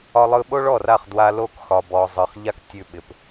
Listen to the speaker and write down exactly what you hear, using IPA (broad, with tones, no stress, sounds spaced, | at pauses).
ɒ˧ lˠ ɯ˧ ɓ o˦ ɭ ɔ˦˨ r a˦˨ χ d w a˧ l o˦˨ k x ɒ˨ b ɔ˨ zˤ ɯ˨ χ ʎ a˦ k tʲ ʉ˧ ɓ ɪ˨ p